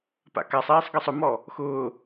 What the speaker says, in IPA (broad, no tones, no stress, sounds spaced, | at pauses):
p a̰ k a sˤ iː sˤ ɡ i sˤ ʊ m ɔ | x ʊː